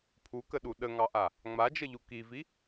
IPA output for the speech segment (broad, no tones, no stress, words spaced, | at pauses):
pʰukəɗu ɗəŋɑʔa | ŋ͡mad͡ʒəʎu kivi